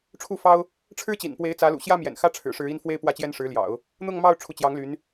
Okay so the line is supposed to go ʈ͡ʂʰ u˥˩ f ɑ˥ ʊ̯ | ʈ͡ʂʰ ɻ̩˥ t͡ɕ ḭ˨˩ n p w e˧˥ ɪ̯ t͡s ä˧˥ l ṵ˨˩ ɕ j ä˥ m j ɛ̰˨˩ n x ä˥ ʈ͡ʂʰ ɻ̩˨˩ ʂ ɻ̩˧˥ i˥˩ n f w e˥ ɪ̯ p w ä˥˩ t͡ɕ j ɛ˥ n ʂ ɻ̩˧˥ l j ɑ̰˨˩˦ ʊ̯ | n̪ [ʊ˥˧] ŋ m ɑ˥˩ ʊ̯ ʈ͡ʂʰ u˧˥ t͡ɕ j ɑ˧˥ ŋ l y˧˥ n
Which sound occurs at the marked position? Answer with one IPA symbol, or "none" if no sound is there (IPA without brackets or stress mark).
ʊ˥˧